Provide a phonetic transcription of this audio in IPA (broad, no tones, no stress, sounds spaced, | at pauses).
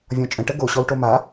vʲ ɔ̃ t͡ʃʼ ə̃ ʈ ə ɡ o ɕ ɔ w ʈ o m a